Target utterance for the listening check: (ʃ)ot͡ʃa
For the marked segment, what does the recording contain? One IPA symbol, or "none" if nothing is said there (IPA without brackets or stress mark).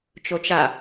t͡ʃ